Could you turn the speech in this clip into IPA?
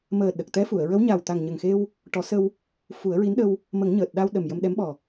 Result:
m əː˨˩ ɗ ə˨˩ k̚ t̪ ɛ˧˥ f u˨˩˨ ə̯ ɹ ə˧˥ w ɲ a˨˩ w t̪ a˨˩ ŋ ɲ ə˨˩ ŋ x e˧ w | ʈ ɔ˨˩˦ s ə˧ w | f u˨˩˦ ə̯ ɹ i˧˥ n ɗ ə˧ w | m ə˨˩˦ ŋ ɲ əː˨˩ t̚ ɗ a˧ w ɗ ə˨˩ m j ə˧ m ɗ ɛ˧˥ m ɓ ɔ˨˩

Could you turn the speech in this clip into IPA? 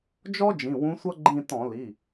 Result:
d͡ʒ ɔ˥ d͡ʒ ĩ˩˧˩ w ũ˧˥ sʷ ʌ˥ ɡ͡ǃ ĩ˦˨ t ɔ̃˧˩˧ l i˩˧˩

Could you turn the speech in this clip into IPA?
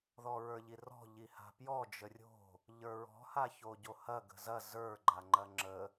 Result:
ð ɔ ɹ ə˞ ʎ i r ɔ̤ ʎ i h a̤ p j ɔ d͡ʒ ə rʲ o̤ | ʎ ə˞ ɹ ɔ̤ h a ç o ɟ o h ɐ ɡ ə̤ z ɐ z ə˞ ɡ͡ǃ a ŋ͡ǃ ɐ ŋ͡ǁ ə

